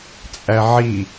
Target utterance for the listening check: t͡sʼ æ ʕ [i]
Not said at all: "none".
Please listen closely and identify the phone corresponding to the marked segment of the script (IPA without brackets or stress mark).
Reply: i